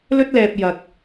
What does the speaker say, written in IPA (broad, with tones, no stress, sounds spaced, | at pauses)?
l ɵ˥ t̚ l ɛː˧ p̚ j ɐ˧ k̚